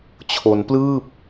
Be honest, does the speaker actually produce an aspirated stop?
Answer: yes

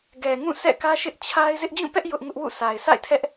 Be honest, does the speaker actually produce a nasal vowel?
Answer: yes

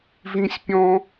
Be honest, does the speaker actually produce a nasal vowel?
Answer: yes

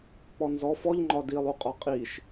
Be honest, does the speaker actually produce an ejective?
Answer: yes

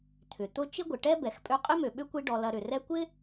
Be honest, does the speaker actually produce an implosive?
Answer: yes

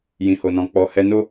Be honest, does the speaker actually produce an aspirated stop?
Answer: no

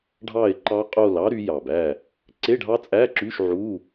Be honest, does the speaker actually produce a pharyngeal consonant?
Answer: yes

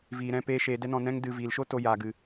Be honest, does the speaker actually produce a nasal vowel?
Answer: yes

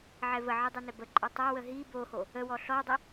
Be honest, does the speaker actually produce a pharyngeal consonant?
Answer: yes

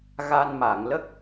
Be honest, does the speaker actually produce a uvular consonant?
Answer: no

